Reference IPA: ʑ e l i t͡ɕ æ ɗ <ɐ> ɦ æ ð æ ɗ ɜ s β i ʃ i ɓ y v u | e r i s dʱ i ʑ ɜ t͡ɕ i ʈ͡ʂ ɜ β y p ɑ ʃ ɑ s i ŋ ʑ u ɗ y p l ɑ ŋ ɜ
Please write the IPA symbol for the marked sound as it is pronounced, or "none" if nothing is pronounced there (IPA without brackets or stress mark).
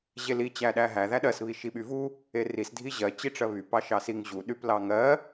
æ